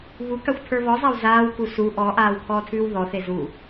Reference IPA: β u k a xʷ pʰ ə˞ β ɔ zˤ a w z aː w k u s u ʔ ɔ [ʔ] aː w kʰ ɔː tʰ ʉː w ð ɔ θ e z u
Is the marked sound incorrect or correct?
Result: correct